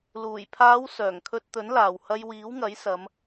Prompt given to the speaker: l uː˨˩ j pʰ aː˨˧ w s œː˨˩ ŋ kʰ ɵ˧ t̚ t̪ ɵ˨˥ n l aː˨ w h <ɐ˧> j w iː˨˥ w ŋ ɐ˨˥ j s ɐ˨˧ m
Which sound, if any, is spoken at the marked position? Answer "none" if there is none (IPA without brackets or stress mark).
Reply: ɐ˧